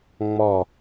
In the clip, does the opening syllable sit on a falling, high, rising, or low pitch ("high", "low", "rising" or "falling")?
falling